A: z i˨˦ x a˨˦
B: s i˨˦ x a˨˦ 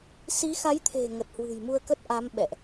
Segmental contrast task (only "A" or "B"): B